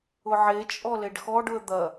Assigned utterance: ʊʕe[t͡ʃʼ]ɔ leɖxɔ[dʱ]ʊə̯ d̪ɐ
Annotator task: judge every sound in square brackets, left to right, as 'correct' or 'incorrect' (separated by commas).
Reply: correct, incorrect